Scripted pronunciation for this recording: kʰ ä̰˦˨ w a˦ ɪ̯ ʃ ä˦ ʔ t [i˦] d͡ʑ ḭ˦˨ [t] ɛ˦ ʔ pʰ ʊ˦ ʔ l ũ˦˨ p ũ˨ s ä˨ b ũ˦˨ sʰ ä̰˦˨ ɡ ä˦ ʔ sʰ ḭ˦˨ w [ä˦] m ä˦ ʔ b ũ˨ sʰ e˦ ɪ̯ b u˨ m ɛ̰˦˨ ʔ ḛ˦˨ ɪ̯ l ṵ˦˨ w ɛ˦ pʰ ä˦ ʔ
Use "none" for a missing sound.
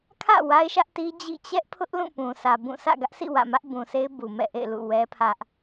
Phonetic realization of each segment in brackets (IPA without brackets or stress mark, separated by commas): i˦, t͡ɕ, ä̰˦˨